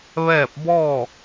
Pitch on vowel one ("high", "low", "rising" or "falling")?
falling